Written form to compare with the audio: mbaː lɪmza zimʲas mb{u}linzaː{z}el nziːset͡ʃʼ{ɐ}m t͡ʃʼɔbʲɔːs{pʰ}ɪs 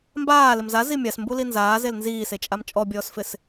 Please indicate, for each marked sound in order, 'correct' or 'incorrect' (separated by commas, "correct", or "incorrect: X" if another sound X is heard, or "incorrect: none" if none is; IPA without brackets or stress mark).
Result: correct, correct, incorrect: a, incorrect: f